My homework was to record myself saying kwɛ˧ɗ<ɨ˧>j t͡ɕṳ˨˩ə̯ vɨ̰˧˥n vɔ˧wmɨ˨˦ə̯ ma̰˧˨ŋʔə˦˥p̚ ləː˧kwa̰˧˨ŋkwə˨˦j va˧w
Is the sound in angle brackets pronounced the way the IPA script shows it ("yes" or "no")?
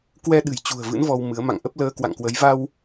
no